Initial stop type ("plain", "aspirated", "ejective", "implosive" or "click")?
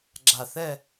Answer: click